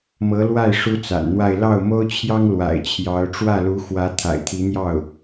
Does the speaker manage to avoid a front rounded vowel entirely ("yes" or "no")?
yes